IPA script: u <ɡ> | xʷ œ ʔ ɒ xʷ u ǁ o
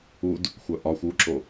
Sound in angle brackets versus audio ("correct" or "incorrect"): incorrect